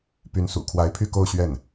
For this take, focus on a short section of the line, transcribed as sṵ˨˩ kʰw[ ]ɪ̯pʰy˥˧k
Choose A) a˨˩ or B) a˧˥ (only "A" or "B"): B